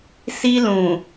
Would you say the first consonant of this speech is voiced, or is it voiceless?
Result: voiceless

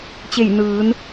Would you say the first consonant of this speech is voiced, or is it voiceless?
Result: voiceless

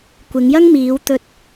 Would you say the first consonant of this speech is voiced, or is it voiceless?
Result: voiceless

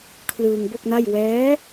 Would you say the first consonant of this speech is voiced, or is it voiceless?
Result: voiceless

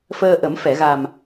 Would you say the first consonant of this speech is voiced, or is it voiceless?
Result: voiceless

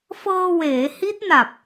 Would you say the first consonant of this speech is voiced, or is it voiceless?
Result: voiceless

